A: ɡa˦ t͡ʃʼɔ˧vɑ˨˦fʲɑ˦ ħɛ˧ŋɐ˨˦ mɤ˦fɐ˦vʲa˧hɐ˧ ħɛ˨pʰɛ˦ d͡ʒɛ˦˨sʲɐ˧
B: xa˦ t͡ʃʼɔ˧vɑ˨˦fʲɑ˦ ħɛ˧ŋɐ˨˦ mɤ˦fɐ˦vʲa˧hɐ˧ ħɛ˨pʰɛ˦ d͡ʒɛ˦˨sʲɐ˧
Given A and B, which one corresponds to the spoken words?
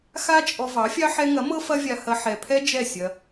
B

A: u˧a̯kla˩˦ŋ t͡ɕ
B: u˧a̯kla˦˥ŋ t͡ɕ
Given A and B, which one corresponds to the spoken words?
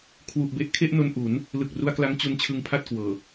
B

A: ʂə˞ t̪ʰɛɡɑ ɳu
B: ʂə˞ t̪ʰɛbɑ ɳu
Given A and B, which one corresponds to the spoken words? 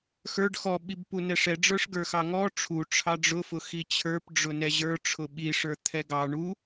A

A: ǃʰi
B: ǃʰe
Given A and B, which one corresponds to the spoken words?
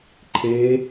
B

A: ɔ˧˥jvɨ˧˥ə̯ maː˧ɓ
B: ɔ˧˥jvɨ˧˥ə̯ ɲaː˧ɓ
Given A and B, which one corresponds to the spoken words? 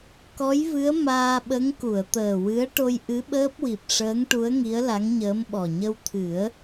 A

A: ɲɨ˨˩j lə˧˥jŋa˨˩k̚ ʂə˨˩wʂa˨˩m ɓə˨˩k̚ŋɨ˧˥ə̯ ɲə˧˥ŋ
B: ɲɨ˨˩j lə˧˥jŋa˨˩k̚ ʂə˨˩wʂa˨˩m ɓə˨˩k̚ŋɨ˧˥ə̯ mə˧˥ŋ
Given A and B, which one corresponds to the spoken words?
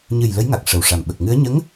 A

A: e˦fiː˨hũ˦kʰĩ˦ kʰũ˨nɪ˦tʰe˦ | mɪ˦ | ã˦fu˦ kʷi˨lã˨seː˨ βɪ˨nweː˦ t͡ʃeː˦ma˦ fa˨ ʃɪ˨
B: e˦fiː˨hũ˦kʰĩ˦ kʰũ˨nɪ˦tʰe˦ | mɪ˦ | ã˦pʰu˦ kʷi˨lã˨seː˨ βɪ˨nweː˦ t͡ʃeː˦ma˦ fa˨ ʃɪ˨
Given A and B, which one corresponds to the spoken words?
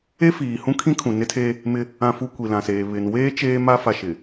A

